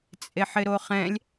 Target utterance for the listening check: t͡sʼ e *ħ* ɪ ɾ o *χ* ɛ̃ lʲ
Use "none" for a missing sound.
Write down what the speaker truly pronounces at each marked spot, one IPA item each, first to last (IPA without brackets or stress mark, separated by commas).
ħ, χ